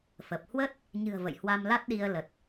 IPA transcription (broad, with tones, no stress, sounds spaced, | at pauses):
f ə˨˩ p̚ h w ə˦˥ t̚ | ɲ ɨ̤˨˩ ə̯ v ə̰˧˨ j h w a˧ m l a˦˥ t̚ ɗ i˧ ə̯ l ə˨˩ t̚